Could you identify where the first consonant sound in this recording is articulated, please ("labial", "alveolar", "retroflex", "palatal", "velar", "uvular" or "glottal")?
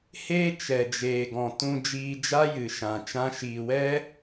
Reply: glottal